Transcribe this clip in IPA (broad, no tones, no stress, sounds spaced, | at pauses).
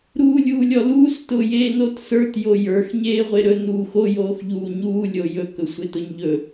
ɾ uː lʲ uː lʲ ɔ l uː s t ʊː j eː n o t s ə˞ t j o j ə˞ x ɲ eː ʁʷ e ɾ ɵ n uː x o j oː x ʎ uː ɲ uː lʲ o j ɵ k ɵ sʷ e t ʊ ɲ ʎ ɵ